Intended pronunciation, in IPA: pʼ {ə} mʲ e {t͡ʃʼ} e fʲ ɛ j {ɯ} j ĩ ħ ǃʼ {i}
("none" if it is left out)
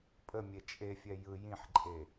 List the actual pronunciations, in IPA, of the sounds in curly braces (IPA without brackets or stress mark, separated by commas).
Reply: ə, t͡ʃʼ, ɯ, e